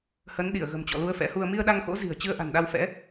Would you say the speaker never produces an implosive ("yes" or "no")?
no